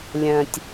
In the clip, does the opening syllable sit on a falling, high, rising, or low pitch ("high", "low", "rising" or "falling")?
low